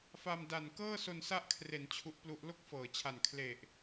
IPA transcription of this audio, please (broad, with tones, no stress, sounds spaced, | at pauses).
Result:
f a˧ m d a˨˩ n k ɤː˥˩ s o˧ n s a˦˥ ʔ kʰ r e˩˦ n t͡ɕʰ u˦˥ ʔ p l u˦˥ ʔ l o˥˩ k̚ f ɤː˩˦ t͡ɕʰ a˨˩ n kʰ l e˨˩ ʔ